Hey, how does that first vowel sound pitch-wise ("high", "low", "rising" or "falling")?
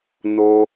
high